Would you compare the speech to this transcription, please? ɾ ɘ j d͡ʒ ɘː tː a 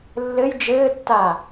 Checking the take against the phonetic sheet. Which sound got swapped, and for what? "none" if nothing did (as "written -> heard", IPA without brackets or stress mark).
ɾ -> lː